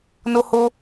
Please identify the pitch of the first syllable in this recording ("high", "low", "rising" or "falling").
high